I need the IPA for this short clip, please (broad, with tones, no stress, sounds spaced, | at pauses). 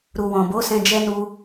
ɾ u˨ w ɔ̃˨ b o˨˦ s ɛ̃˧ d͡ʒ ɛ˦ n u˦